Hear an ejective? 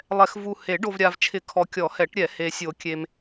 no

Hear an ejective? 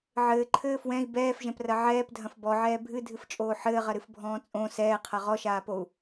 yes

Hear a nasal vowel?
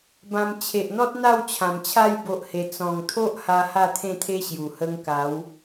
yes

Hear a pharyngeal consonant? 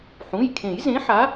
yes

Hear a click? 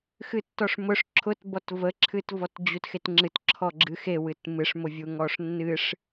yes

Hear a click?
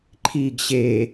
yes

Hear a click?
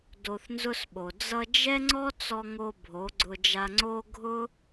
yes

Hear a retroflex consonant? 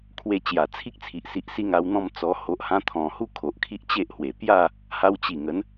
no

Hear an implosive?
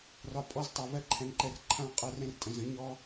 no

